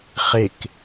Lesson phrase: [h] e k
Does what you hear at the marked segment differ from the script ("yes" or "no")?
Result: yes